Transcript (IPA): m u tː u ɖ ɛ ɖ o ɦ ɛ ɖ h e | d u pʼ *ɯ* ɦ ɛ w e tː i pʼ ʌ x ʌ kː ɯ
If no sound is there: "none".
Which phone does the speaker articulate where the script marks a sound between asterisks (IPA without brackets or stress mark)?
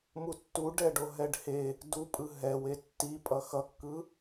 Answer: ɯ